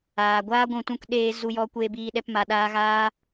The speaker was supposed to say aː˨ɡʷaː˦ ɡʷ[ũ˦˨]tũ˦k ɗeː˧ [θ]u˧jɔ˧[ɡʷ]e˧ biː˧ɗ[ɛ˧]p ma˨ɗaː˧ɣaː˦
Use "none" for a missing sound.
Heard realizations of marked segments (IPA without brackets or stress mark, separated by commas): ũ˦˨, z, kʷ, ɛ˧